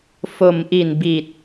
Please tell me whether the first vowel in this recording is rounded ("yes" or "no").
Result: yes